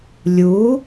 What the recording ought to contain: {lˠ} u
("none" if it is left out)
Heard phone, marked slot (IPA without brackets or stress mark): lʲ